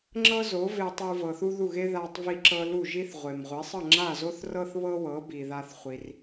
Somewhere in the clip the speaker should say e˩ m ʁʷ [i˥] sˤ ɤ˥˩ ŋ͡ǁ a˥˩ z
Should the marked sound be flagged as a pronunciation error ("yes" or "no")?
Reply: yes